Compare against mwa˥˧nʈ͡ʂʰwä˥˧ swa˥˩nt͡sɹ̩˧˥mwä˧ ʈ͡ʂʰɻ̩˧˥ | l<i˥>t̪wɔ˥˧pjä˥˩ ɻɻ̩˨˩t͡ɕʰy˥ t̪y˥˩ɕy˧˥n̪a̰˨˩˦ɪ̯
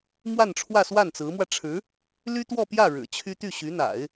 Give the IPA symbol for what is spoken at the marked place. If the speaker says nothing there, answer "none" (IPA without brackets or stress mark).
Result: y˥